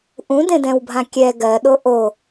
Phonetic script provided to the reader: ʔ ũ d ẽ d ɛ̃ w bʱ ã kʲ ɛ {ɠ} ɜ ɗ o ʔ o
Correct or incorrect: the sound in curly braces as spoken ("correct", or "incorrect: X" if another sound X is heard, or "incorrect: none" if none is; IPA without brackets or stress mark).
incorrect: ɡ